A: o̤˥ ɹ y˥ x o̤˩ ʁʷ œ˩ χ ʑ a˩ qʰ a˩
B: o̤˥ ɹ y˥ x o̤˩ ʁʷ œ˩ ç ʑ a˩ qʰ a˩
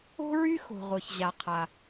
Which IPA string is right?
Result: B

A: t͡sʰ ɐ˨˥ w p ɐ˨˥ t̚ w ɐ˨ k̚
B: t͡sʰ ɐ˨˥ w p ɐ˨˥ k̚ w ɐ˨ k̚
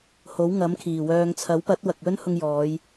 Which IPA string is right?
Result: A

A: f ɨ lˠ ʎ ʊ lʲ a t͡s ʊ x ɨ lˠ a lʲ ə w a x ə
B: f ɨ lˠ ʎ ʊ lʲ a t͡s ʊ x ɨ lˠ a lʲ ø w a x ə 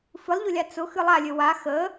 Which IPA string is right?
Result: B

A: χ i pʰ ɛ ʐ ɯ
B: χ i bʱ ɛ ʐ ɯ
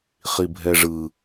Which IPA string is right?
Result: B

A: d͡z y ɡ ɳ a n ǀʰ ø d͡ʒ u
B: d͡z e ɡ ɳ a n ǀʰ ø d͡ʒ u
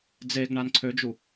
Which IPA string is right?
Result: B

